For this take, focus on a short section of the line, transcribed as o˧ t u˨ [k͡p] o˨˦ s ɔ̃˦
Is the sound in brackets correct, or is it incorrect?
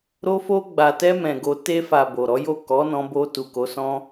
incorrect